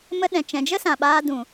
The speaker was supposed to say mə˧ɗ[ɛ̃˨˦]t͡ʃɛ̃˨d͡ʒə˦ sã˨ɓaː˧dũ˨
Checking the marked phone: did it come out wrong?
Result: yes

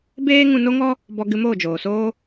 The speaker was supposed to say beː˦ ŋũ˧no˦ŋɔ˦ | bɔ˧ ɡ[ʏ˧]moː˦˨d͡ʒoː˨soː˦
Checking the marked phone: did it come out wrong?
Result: yes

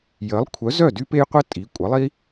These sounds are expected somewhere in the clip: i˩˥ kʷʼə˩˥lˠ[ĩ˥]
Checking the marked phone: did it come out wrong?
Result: yes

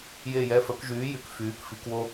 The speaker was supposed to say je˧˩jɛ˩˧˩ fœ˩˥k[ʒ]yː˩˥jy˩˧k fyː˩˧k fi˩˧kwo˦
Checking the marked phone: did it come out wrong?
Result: no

